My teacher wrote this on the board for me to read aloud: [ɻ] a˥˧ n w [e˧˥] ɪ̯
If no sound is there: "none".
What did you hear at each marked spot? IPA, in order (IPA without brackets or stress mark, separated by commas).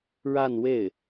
ɻ, e˥˩